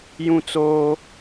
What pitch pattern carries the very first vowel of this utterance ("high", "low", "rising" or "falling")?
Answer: high